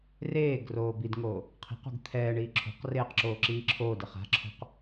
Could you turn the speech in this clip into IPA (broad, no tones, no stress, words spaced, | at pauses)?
reːɡ roːbidŋoː | qʰi̤q ṳɡt̪ʰɛːɳiː ǁʰo̤q reːqǁoː ǁiːǁʰoːdeχ a̤ǁʰo̤q